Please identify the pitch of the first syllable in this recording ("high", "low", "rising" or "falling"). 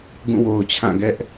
falling